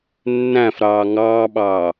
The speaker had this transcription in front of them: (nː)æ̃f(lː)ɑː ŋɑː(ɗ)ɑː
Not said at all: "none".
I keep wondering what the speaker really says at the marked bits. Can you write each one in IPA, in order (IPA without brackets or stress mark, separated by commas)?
nː, ɾ, ɓ